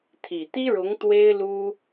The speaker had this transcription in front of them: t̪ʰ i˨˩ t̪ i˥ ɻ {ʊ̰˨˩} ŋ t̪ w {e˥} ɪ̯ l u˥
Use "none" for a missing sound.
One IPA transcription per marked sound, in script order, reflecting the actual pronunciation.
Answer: ʊ˧˥, e˥

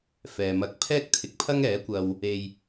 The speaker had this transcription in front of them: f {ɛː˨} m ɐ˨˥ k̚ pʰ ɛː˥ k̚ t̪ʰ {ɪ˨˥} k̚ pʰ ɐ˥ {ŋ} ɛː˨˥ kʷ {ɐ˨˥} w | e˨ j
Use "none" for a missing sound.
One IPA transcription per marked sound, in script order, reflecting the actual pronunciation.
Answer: ɛː˨, ɪ˨˥, ŋ, ɐ˧

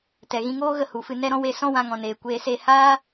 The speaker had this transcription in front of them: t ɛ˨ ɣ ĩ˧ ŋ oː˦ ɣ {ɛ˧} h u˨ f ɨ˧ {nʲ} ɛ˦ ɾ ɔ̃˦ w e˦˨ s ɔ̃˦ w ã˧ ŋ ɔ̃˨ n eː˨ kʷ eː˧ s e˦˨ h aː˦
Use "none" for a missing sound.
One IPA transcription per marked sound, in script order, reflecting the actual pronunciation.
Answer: ə˧, n

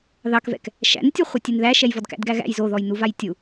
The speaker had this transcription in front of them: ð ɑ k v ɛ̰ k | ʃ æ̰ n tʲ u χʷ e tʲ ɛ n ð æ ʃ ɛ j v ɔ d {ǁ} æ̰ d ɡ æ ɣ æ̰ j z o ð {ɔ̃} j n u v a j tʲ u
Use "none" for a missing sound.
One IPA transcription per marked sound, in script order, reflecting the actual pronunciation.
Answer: k, ɔ

